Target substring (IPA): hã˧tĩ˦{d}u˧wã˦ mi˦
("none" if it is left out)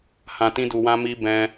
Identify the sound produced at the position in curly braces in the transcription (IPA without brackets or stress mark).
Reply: d